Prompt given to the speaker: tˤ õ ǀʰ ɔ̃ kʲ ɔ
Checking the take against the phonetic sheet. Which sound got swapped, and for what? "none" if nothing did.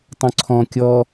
none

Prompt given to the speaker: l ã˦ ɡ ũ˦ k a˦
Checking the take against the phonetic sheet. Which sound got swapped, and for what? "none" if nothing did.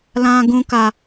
none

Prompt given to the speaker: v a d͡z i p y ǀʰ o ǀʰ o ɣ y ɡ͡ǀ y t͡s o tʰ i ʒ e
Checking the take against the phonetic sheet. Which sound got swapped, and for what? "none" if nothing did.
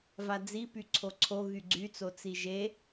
tʰ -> t͡s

